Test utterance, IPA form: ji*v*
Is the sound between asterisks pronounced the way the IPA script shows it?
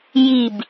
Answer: no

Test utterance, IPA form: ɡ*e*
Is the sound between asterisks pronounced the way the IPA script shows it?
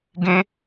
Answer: no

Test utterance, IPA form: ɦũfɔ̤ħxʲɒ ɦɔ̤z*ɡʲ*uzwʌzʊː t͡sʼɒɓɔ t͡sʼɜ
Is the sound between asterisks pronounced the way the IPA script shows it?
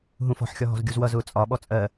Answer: yes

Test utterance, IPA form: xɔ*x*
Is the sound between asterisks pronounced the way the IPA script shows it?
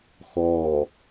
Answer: no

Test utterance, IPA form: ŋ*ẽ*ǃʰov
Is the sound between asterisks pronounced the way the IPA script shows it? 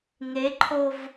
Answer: no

